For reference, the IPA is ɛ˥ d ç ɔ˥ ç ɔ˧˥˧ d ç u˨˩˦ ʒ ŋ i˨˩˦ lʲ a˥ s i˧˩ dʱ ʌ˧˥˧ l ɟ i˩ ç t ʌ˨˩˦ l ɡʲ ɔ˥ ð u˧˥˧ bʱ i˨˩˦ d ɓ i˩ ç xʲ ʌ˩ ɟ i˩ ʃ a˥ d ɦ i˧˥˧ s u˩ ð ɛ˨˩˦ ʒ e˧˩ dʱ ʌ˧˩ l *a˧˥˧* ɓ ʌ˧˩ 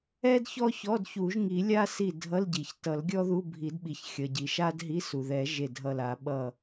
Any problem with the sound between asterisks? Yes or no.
yes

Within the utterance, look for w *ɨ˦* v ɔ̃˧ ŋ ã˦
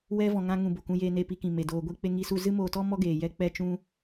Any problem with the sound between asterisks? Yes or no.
yes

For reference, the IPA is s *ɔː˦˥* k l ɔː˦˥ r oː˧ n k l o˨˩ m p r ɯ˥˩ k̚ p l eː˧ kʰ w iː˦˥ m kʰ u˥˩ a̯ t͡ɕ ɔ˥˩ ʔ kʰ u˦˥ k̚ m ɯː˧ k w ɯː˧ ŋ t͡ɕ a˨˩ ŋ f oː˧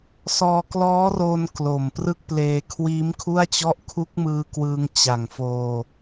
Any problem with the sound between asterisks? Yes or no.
yes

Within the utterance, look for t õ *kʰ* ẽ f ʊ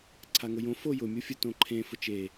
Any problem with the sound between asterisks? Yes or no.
yes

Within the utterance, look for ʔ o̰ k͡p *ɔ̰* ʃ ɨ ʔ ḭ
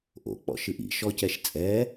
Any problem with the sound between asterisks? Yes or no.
no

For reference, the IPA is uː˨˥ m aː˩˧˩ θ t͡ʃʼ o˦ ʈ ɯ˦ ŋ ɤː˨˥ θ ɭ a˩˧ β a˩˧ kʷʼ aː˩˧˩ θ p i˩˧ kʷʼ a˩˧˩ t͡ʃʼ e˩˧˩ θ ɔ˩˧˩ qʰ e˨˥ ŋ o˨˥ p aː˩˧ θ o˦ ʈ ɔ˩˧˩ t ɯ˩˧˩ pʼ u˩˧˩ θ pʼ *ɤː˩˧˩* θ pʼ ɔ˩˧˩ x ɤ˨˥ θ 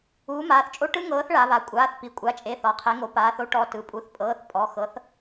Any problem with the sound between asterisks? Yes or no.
no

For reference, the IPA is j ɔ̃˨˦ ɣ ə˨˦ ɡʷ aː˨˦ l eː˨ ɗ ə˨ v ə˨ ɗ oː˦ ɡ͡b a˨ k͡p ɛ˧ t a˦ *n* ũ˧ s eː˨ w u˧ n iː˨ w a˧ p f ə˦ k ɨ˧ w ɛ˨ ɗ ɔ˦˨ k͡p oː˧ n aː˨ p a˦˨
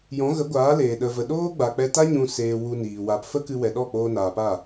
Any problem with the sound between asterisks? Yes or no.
yes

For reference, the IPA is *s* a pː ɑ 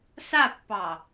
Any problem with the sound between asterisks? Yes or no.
no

